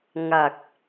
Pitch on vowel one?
low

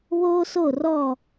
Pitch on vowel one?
high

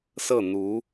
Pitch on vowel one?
falling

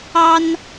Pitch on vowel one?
high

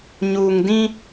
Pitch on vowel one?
low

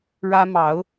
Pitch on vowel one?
high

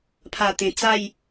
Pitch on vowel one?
low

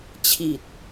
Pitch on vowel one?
low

